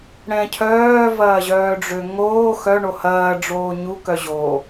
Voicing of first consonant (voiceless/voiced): voiced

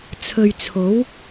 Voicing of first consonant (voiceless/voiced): voiceless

